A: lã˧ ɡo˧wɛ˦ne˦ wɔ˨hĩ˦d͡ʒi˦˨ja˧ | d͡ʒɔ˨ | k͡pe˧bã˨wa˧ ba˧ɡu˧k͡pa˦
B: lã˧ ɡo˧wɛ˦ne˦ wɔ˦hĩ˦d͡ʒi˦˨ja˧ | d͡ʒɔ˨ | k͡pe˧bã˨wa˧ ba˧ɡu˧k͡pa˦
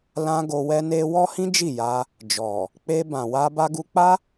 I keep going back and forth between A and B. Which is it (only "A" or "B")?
B